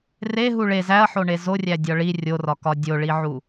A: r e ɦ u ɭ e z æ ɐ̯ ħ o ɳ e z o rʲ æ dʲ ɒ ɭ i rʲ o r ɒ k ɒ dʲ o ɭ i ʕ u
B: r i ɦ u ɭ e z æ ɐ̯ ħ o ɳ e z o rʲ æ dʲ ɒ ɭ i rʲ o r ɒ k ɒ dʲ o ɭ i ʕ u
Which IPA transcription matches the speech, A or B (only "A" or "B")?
A